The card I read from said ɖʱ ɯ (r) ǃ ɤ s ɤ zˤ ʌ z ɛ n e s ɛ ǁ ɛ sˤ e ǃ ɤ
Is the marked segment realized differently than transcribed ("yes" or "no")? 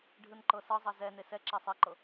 yes